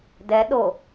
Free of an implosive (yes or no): no